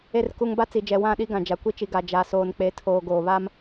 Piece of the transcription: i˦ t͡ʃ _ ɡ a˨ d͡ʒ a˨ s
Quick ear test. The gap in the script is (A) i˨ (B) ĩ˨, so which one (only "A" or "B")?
A